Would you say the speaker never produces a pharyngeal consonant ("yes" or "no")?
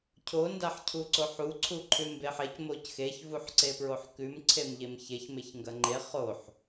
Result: no